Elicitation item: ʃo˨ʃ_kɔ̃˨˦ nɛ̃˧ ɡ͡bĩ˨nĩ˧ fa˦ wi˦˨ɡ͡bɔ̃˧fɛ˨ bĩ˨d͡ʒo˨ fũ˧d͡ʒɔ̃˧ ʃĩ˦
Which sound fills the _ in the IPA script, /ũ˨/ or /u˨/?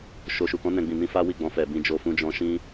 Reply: u˨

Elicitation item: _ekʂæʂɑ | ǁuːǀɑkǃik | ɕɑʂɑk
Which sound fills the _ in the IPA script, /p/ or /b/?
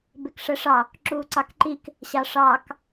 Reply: b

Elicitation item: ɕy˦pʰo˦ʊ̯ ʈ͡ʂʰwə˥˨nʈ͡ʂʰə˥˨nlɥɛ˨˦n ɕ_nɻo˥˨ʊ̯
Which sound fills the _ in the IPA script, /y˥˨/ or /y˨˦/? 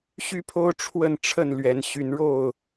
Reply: y˨˦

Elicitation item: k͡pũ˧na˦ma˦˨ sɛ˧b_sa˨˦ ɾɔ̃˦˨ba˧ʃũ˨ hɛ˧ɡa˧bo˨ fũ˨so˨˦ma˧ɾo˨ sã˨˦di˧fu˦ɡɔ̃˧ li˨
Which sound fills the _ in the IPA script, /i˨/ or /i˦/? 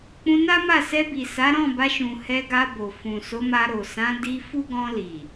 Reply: i˨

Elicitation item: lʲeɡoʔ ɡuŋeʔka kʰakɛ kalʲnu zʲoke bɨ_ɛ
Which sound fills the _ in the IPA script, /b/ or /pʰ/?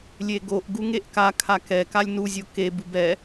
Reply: b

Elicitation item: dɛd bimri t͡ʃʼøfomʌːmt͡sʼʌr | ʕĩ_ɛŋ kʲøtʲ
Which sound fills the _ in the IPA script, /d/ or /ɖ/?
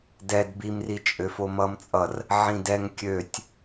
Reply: d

